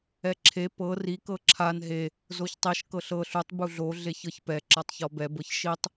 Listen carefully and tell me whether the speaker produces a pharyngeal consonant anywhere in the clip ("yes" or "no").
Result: no